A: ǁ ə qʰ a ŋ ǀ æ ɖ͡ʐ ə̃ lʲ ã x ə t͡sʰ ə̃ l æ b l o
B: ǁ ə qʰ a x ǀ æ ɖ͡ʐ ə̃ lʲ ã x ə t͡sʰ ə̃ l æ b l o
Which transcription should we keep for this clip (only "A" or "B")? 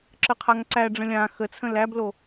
A